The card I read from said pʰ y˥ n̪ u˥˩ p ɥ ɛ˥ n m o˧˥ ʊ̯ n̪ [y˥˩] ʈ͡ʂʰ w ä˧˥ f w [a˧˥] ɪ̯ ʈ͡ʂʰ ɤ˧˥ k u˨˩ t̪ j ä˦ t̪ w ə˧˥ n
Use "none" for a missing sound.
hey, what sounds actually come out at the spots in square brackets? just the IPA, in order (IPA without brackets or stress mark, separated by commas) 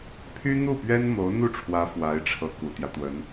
u˥˩, a˧˥